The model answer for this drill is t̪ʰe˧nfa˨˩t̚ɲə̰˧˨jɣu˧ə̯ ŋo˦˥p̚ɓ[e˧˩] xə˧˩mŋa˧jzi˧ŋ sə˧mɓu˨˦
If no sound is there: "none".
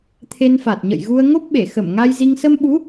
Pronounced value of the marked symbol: e˧˩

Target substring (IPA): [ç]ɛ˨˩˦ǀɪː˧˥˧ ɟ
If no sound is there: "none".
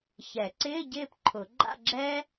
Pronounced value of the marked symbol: ç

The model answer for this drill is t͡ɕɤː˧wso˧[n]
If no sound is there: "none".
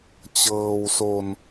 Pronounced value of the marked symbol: n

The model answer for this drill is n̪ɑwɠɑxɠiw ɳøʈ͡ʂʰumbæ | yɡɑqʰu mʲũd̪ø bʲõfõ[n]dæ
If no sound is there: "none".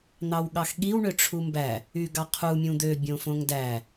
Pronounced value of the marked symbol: ŋ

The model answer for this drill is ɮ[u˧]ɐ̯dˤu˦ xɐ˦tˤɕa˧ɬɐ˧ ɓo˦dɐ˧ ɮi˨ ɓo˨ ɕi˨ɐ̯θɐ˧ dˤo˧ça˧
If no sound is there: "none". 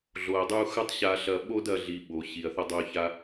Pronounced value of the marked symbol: o˧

